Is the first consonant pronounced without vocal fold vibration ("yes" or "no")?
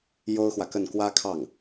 no